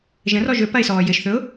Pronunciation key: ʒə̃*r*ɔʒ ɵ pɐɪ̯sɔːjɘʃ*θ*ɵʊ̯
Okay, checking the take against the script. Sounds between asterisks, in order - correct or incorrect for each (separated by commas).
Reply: correct, correct